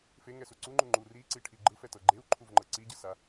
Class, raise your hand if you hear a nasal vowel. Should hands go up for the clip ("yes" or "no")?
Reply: no